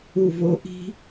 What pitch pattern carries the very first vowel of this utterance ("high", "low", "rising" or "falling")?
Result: low